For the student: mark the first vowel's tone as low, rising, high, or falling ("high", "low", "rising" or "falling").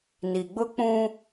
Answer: low